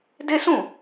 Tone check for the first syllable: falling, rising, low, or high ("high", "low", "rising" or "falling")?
high